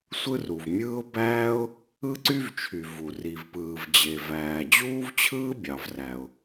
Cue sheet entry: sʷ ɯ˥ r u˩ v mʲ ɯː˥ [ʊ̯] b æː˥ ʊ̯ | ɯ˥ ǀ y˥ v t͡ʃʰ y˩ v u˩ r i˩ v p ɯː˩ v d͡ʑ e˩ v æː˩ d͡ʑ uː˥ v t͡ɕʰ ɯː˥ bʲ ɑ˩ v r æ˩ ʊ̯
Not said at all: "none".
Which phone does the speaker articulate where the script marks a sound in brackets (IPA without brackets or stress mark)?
ʊ̯